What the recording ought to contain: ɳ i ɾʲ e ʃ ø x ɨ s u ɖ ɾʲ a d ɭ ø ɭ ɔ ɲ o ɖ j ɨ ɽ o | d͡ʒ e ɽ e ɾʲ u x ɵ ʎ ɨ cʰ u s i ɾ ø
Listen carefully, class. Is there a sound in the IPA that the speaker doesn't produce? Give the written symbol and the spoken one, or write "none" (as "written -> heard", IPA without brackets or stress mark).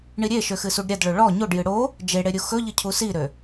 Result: none